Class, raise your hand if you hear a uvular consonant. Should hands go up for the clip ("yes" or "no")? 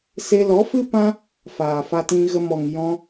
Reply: no